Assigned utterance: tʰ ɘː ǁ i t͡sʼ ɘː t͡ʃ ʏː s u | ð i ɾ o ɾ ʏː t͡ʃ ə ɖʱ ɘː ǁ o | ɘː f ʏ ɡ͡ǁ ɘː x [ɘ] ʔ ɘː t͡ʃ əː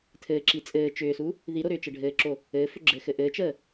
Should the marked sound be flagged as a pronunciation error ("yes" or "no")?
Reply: no